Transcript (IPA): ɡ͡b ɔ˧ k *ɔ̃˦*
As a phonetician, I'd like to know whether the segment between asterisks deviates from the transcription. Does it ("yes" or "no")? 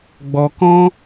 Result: no